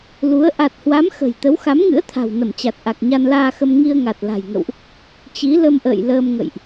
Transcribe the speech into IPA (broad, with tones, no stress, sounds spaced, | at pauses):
l u˨˦ ə̯ ʔ a˨˩ t̚ h w a˨˦ m x ə̤˨˩ j t̪ ə˨˦ w x a˨˦ m ŋ ɨ̰˧˥ ə̯ t̪ʰ a̤˨˩ w n ə˧˩ m t͡ɕ a˨˩ t̚ ʔ a˨˩ k̚ ɲ a˧ n l aː˧ x ə˧ m ŋ i˧ ə̯ ŋ a˨˩ t̚ l a̤˨˩ j ŋ ə̰˧˨ w ʔ | t͡ɕ i˨˦ l ə˧ m ʔ ə̰ː˧˨ j l əː˧ m ŋ ə̰˧˨ j ʔ